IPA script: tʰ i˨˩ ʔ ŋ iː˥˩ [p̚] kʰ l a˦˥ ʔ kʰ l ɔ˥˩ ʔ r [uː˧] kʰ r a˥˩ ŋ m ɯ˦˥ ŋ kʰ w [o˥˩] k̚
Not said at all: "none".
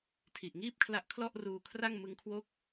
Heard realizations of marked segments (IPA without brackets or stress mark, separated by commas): p̚, uː˧, oː˥˩